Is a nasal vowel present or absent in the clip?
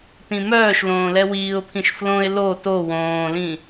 present